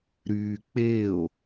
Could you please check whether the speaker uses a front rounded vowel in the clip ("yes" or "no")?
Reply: yes